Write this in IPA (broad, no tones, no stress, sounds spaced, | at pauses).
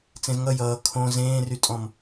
t͡s ẽ z ŋ ʌ j ʌː kʰ õ z ẽː r y tʼ ɔ̃ m